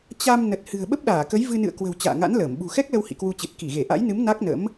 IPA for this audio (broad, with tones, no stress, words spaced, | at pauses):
t͡ɕa˧m nə˨˩t̚ hɨ̤˨˩ə̯ɓə˦˥p̚ɗaː˧˩kə˨˦j vɨ˧nɨ̰˧˨ə̯kwə̤˨˩w t͡ɕa̰ː˧˨ŋa̰˧˥nləː˧˩m ɓṳ˨˩xɛ˦˥k̚lə˧w hḭ˧˨kwu˧t͡ɕɨ˨˩t̚ ki˧˩ɣe˧˩ʔa̰˧˥jnɨ˨˦m na˦˥k̚nə̰˧˥m